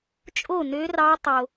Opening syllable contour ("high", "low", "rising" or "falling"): falling